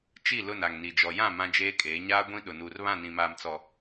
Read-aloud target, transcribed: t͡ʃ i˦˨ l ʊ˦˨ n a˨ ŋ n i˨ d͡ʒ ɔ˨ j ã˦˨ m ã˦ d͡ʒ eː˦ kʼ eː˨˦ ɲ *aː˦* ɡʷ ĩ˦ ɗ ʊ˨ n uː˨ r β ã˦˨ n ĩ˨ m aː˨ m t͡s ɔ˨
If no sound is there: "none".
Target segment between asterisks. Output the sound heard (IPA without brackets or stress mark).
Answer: aː˦